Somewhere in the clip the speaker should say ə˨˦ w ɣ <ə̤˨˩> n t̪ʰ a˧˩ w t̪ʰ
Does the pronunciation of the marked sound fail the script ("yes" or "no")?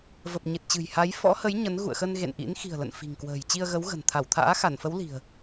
no